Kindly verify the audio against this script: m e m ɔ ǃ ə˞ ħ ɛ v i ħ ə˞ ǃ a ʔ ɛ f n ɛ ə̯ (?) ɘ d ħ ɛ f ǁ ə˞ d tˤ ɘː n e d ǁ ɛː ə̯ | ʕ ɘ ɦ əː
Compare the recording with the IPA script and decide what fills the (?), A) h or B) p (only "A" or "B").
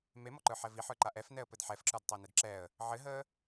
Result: B